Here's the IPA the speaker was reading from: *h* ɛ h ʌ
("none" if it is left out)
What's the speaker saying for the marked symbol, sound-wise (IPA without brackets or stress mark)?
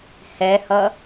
h